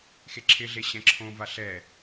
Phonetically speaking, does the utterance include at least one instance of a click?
yes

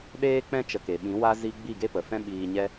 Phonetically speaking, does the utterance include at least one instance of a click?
no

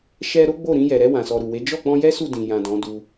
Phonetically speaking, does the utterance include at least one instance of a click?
no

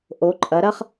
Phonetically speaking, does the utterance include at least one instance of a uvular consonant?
yes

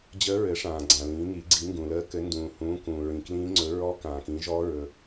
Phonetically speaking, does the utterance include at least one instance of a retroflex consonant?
yes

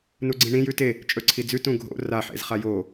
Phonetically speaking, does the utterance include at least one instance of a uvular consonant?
yes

